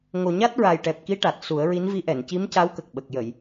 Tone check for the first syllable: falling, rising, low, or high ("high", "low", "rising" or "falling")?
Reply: low